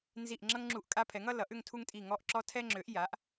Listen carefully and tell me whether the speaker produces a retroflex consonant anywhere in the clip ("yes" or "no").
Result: no